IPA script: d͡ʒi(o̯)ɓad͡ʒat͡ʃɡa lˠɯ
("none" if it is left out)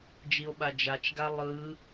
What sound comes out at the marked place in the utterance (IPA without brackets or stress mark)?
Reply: o̯